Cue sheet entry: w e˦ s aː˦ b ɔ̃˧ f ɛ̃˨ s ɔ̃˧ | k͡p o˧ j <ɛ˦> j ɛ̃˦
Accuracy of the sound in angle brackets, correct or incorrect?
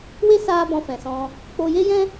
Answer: incorrect